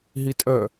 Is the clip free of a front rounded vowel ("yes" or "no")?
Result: no